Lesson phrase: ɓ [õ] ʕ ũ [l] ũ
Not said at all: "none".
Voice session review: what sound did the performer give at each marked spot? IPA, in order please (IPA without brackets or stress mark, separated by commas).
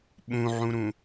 ũ, ɾ